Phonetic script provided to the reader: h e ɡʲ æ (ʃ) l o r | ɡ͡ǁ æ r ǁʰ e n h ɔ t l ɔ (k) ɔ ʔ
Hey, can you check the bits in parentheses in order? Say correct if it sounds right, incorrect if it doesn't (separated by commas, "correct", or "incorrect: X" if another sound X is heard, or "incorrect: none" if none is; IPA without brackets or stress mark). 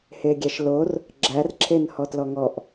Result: correct, incorrect: ŋ